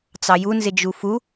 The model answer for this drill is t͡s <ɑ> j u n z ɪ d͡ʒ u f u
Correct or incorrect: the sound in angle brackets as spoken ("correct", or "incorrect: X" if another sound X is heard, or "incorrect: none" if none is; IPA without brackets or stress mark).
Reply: correct